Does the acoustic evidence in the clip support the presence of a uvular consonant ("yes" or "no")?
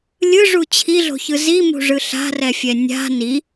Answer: no